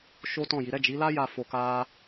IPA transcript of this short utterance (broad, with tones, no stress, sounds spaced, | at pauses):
ʃ o˦ t ɔ̃˦˨ j i˨˦ ɾ ɛ˦˨ d͡ʒ i˨˦ l a˦ j a˦˨ f o˧ k a˦